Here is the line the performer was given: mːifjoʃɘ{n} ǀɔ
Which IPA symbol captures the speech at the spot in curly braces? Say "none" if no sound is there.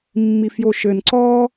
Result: n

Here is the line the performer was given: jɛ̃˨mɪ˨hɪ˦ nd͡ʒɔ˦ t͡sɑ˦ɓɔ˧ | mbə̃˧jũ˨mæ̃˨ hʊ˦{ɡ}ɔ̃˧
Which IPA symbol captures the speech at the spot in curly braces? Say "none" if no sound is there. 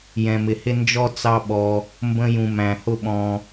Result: ɓ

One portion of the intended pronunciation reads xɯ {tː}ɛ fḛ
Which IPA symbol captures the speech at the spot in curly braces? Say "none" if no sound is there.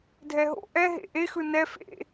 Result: n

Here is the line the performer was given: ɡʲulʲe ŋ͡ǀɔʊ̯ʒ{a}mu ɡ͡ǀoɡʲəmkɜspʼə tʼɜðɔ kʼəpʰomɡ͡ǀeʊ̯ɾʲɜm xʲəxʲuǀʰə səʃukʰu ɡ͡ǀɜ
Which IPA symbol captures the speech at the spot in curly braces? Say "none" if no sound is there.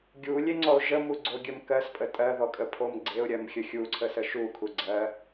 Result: ə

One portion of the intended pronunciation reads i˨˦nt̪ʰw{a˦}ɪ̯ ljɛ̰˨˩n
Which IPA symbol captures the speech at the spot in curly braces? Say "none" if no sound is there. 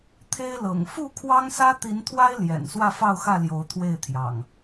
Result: a˦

